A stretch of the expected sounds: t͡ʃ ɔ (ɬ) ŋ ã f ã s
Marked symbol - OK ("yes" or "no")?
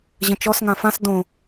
no